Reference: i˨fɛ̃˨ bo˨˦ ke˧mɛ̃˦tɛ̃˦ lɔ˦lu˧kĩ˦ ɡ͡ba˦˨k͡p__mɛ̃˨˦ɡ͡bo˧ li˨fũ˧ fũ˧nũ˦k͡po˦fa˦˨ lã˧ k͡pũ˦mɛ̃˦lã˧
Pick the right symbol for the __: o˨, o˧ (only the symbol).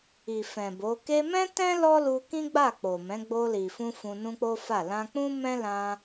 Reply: o˨